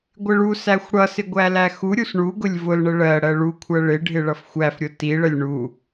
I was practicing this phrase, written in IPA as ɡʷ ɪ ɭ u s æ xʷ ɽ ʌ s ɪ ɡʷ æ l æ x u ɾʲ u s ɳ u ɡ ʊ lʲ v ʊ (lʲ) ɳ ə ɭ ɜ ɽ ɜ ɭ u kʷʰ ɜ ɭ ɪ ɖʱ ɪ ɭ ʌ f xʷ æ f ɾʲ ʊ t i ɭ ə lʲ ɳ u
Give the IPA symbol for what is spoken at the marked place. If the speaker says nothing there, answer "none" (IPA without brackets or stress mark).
l